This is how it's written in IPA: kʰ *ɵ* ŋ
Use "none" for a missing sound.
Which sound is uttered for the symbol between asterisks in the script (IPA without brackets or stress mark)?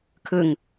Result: ɵ